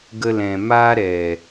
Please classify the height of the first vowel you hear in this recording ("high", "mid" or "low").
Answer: mid